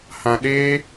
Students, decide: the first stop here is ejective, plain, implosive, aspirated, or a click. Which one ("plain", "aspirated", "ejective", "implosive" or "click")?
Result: implosive